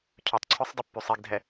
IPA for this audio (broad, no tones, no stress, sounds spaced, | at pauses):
cʰ ø tˤ ǀʰ ø sˤ dˤ ə pː y sˤ i ɡ dʱ ɛ